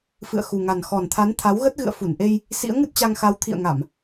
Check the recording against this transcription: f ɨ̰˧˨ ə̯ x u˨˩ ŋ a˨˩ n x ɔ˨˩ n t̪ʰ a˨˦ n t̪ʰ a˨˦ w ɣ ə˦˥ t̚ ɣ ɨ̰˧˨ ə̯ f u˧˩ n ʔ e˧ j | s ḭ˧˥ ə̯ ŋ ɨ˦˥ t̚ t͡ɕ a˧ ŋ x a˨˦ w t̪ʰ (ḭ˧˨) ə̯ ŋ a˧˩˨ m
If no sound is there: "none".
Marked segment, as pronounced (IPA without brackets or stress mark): ḭ˧˨